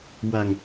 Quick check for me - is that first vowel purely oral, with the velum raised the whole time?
yes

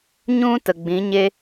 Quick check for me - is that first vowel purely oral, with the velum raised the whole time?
no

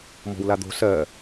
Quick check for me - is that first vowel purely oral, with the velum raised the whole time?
yes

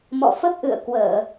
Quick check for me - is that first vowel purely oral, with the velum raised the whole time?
yes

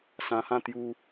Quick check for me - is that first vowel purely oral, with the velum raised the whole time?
no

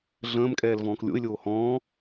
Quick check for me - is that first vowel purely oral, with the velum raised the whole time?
no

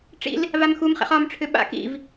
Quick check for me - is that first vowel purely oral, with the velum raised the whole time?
yes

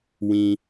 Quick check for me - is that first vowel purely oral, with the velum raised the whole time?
no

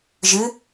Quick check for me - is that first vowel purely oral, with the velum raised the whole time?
yes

